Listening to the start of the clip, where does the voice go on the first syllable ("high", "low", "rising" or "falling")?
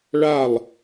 falling